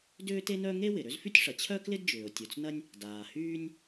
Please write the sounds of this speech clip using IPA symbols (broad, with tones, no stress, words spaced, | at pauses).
dʏː˥te˥nœ˥ ŋe˥wɪ˩ ɾø˥zfy˥tʲʂɐ˩ t͡ɕʰœ˥klɪ˥dd͡ʒʏː˩ʊ̯ tʲo˩t͡snɐ˥nʲ | daː˩hyː˥nʲ